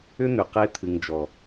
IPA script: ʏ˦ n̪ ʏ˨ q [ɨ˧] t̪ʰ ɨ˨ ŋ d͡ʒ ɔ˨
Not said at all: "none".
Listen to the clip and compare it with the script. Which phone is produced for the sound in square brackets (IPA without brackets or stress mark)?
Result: e˧